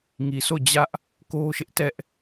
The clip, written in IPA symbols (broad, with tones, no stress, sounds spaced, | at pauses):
ŋ i˨ sʰ o˦˨ d͡ʑ ä˦ ʔ | k o˦ ʃ ɪ˦ ʔ t ɛ˦ ʔ